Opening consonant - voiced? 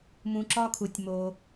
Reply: yes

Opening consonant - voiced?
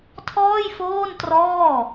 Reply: no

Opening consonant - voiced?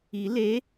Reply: yes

